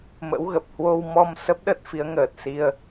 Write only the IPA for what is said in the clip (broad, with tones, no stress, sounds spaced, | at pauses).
m ə̰˧˥ w ɣ ə˨˩ p̚ h w o˧ w m ɔ˧ m s ə˦˥ p̚ ɗ ə˦˥ t̚ f i˨˦ ə̯ ŋ əː˨˩ t̚ s i˧ ə̯